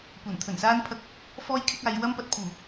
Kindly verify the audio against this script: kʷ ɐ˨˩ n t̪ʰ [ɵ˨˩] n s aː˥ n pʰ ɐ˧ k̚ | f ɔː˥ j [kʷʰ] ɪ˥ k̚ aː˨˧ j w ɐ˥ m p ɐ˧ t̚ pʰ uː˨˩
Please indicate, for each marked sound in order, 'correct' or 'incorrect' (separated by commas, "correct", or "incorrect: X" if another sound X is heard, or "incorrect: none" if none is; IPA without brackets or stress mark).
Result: correct, incorrect: kʰ